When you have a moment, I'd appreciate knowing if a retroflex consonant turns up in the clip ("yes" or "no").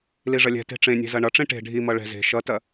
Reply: yes